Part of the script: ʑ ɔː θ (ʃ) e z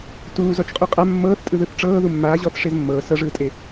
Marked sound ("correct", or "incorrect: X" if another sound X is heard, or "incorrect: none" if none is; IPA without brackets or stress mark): incorrect: ʂ